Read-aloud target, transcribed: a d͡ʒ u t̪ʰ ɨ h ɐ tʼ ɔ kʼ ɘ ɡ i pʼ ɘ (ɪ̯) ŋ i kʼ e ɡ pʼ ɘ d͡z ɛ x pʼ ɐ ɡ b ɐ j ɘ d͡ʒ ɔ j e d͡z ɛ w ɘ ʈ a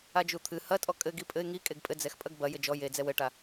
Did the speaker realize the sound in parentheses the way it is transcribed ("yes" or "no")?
yes